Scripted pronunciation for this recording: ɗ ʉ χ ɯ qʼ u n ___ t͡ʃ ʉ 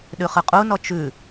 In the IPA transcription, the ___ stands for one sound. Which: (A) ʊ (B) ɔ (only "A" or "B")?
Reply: B